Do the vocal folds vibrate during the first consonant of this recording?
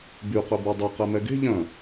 yes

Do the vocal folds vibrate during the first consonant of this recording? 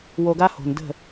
yes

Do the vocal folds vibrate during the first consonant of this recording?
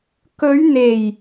no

